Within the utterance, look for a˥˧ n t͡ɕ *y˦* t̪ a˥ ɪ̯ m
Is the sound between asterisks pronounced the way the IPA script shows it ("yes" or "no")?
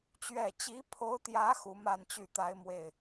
no